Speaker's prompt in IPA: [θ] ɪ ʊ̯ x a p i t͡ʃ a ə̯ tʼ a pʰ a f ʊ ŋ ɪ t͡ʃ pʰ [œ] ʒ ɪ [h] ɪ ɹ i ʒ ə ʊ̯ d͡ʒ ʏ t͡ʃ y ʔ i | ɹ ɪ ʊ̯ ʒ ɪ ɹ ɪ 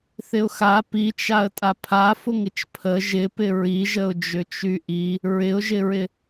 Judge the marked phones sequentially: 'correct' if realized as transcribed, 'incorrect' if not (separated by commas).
correct, incorrect, incorrect